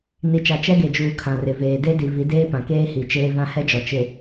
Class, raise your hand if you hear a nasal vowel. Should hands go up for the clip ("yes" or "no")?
yes